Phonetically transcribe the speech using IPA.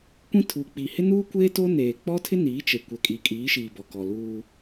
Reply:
kʷĩ˦tʰuː˨ k͡piː˨hɪ˦nuː˦kʷeː˦ to˦neː˨ k͡pɔ˦tʰɪ˦ niː˨˦t͡ʃe˨ kʷɛ˨kʼi˨kʼiː˨˦ʃiː˨ bɔ˨kɔ˨ luː˦

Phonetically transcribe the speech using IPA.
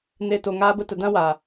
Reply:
ne˦to˧ ŋaː˦bə˦tə˧ dã˦waː˨

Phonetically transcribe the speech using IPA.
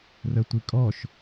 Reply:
rətʷikʼɔʃ

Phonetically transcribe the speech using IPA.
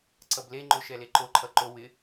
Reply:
ǀʌble ŋ͡ǃoʃɛleǃo ǃʰʌǃo wɪ

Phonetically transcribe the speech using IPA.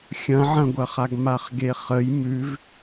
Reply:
xʲɐ̃ʕɐ̃ɡʷɐχaɡ maχɡeχəj mʉv

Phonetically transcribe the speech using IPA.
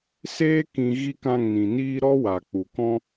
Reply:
seː˦ kĩ˧ ɣi˦kã˦˨ŋnĩ˨niː˦ ɾɔ˦wa˨ k͡pu˨kɔ̃˦

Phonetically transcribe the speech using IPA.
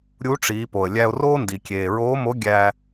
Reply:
ɾʲu˧˥ʈ͡ʂiː˩˧ po˩ə̯lʲæ˧ʊ̯roː˥ndi˩ kʲeː˩ɹoː˧˥mo˧˥ ɡʲæ˧

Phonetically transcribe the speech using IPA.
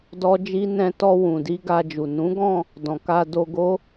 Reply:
dɔ˦d͡ʒi˦ nɛ̃˧tɔ˧ wũ˨di˧ ɡa˧d͡ʒu˨ nũ˨˦ɡɔ̃˦˨ | dɔ̃˨ka˧ do˧ɡo˦

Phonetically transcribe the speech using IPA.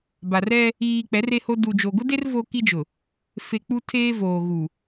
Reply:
ba˨r ɛ˦ | iː˨ k͡pɛ˨˦re˦ho˦ du˨d͡ʒo˨ɡʊ˦de˦r vo˦ki˦d͡ʒʊ˨ | fe˦ k͡pu˦tʰeː˦voː˨ɣu˨

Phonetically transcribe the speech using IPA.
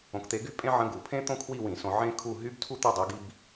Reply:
õ˨˥kt̪e˨˥ɡy˥pʼẽ˥ ʕə̃˧˥˧ɡu˧˩˧pʰẽ˥ t̪õ˥kʰwi˥˧wĩ˧˩˧sõ˧ ʕẽ˥kʰu˥˧ ɦy˥btʰu˥ t̪y˥˧dˤi˨˥ɡi˧˥˧b

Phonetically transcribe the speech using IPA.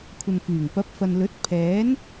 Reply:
kʷʰɐ˨nfyː˨˩ŋ pɐ˨˥p̚fɐ˨nlɵ˨˥t̚ pʰɛː˨˥n

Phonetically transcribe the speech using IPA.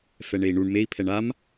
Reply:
fɛɳei̯ɳuɳ mei̯pʰɛɳ am

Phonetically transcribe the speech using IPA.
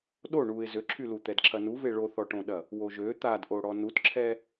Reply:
ɗo ɳuɪ̯ zøǁʰylu t̪ɛdǁʰɐnuve ɭoθɔʈõɗɐ | woʒø t̪adʔoɽɔ nutǁʰɛ

